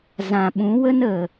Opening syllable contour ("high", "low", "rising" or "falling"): low